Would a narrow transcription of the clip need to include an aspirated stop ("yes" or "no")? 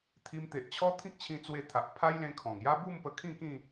yes